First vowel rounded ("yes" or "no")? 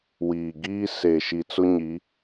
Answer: no